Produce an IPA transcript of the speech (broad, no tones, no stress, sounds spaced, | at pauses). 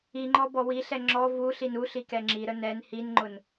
i ŋ͡ǃ ɔ b ɔ w i ɬ ɛ ŋ͡ǁ ɔ v u ɬ i n u ɬ i k ɛ ŋ͡ǁ i ɾ ə n ɛ n h i n ŋ͡ǃ ʊ n